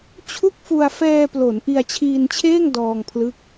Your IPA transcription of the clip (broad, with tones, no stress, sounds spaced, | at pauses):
t͡ɕʰ u˥˩ k̚ f u˧ a̯ f ɛː˧ p l o˩˦ n ʔ i˧ a̯ t͡ɕʰ iː˧ n t͡ɕʰ eː˥˩ ŋ d ɔː˧ ŋ pʰ l ɯ˦˥ k̚